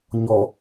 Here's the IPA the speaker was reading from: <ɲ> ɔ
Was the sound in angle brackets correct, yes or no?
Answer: yes